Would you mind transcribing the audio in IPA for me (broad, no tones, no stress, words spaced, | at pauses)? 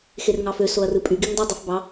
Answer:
xerŋɑfø soɐ̯rɯpʼy ɡiŋdˤɯ dˤifbɑ